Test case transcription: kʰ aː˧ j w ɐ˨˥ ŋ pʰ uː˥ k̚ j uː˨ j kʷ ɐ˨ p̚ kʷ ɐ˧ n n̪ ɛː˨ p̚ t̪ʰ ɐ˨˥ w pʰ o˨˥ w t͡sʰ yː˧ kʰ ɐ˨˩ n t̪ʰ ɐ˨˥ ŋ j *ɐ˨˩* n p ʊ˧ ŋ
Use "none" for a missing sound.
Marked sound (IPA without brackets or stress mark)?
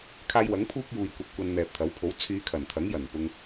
ɐ˨˩